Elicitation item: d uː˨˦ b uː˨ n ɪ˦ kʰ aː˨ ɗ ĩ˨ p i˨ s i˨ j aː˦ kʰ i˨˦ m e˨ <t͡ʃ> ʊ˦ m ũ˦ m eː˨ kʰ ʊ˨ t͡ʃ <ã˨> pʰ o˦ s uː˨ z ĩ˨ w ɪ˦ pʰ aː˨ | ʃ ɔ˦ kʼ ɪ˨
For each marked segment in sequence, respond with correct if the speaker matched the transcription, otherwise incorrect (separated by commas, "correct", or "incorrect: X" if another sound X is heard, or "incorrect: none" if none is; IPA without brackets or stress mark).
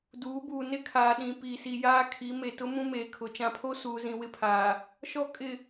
incorrect: t, correct